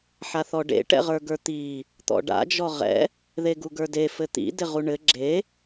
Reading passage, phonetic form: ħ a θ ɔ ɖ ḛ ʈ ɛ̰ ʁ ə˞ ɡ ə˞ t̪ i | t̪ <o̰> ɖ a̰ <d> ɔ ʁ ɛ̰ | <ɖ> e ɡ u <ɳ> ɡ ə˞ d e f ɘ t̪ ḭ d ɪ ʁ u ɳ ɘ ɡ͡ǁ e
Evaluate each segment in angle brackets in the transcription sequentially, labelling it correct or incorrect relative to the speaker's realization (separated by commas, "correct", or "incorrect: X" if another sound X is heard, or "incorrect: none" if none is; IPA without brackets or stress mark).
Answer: incorrect: ɔ̰, incorrect: d͡ʒ, incorrect: ð, incorrect: none